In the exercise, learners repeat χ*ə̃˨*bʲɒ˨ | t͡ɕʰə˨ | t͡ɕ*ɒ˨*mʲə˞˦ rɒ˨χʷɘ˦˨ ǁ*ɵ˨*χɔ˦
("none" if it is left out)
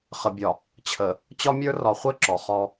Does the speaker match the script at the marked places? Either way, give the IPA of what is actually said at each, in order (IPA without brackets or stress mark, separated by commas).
ə˨, ɒ˦, ɔ˨